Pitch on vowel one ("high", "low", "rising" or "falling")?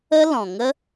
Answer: high